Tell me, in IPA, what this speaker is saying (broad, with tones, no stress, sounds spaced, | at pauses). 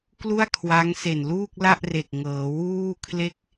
k l u˥˩ a̯ kʰ w a˦˥ ŋ s e˨˩ n l uː˥˩ k̚ l a˥˩ ʔ r e˨˩ k̚ ŋ ɤː˩˦ w uː˥˩ kʰ l e˥˩ k̚